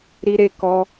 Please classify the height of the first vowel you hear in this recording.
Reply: high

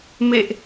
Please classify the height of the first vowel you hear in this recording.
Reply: mid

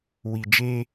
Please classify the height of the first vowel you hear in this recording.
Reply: high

